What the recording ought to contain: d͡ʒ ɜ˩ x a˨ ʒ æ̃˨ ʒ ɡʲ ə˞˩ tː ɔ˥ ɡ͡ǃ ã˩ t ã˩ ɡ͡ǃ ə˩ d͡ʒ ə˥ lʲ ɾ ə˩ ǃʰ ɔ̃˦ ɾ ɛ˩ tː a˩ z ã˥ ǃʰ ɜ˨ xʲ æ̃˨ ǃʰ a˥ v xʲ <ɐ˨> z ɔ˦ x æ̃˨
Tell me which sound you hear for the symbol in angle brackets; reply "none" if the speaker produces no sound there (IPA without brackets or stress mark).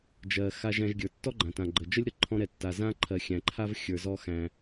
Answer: ə˞˨